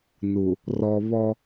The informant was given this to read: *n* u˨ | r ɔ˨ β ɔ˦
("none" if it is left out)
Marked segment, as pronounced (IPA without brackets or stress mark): n